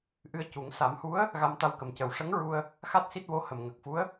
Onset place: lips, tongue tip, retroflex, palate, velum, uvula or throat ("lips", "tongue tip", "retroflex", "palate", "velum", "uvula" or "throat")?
throat